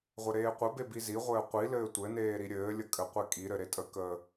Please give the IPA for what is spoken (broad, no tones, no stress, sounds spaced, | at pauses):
ʁʷ ɘ ɾ eː qʷ ə b e b i z i ʁʷ ɘː qʷ i l ɘː tʷ ɘ n eː ɾ i ɾʲ ɘː lʲ ə kʼ ɘ qʷ e kʼ i ɾ ɘ ɾ e tʼ ə k əː